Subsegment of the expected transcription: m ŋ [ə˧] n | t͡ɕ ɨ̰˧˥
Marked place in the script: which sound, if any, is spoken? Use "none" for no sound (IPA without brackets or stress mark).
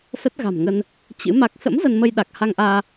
ə˧